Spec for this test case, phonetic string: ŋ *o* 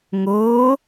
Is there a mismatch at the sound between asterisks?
yes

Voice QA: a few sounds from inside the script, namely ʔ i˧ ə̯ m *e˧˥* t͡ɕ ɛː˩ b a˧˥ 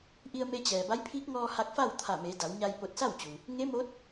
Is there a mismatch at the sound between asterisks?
yes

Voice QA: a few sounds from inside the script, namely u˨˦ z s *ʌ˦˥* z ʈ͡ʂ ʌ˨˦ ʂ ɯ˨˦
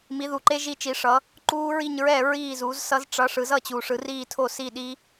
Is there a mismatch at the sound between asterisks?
no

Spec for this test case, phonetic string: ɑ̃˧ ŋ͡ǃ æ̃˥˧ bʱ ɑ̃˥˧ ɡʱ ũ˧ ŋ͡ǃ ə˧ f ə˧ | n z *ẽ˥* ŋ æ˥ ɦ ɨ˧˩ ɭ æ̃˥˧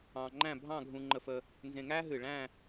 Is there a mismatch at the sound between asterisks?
yes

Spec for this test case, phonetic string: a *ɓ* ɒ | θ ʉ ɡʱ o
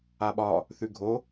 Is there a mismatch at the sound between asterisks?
no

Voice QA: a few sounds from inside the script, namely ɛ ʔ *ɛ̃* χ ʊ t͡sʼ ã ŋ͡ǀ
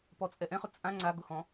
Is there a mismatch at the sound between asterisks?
no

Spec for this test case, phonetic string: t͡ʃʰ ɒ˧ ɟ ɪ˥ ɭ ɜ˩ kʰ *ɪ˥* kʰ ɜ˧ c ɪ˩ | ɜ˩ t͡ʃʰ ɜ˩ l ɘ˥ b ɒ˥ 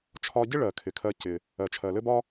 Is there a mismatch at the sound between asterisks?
yes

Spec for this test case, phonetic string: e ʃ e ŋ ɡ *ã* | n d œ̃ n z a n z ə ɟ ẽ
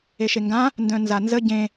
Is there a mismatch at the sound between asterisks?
no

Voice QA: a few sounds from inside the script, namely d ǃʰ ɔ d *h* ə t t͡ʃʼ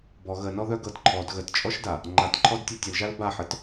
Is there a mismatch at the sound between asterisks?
yes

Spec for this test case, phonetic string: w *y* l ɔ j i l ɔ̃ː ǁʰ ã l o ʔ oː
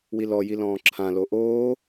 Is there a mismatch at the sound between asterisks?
yes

